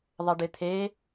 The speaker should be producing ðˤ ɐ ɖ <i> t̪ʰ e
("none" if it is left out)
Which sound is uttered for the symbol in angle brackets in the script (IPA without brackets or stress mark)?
ɪ